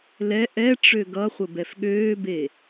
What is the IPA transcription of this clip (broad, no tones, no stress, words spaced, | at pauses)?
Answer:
lɛ ʔɛ ʈ͡ʂøɡʌχʷə bɛfɠøːbe